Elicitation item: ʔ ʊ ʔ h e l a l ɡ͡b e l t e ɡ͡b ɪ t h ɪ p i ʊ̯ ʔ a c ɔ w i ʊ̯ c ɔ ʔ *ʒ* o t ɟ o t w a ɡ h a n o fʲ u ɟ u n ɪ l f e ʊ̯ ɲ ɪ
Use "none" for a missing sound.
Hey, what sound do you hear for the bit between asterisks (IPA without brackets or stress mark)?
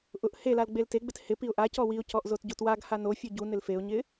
z